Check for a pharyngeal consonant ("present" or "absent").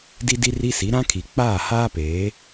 absent